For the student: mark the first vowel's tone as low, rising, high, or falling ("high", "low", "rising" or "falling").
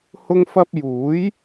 high